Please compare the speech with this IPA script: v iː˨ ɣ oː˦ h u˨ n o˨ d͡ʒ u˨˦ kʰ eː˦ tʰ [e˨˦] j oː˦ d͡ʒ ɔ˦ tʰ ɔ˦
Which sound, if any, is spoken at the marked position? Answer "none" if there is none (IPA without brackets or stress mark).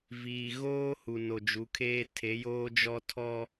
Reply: e˨˦